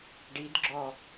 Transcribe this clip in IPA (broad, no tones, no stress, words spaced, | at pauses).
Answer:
ɖidɡ͡ǁɔ